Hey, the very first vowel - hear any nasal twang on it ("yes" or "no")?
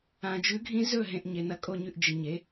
yes